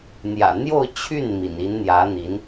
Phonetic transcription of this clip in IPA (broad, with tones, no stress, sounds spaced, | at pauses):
n̪ j ä̰˨˩ n̪ j o˥˧ ʊ̯ t͡ɕʰ y˥˩ n m ḭ˨˩ n i˧˥ n n̪ j ä˧˥ n̪ i˧˥ n